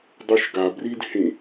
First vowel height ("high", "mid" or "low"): high